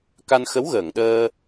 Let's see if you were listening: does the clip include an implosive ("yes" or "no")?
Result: yes